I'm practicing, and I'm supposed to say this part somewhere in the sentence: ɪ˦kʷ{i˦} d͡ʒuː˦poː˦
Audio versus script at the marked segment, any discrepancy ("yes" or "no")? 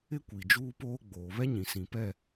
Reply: yes